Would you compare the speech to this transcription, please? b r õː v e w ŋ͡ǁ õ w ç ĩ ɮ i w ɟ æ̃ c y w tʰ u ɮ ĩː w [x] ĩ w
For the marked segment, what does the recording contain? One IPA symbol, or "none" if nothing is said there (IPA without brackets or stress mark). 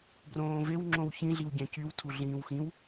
x